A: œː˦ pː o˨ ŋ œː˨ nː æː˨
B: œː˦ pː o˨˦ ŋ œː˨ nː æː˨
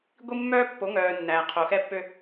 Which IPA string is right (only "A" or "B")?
B